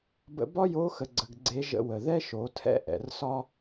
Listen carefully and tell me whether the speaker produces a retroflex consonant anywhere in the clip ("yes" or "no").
no